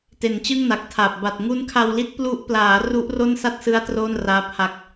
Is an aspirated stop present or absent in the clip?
present